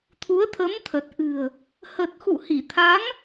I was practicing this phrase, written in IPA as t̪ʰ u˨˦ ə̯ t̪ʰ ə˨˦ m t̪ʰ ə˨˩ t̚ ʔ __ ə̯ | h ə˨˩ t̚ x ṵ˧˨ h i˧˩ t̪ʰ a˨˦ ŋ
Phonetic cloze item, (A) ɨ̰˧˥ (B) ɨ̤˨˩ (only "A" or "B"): B